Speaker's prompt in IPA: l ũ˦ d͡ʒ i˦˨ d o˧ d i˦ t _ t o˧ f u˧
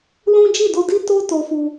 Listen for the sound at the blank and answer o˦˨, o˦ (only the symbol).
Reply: o˦